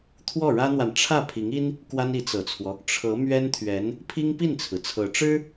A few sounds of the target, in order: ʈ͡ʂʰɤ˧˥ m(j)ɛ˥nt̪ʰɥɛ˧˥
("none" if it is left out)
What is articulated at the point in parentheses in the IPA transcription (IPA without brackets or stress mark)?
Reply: ɥ